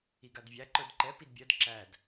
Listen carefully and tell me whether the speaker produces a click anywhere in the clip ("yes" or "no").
yes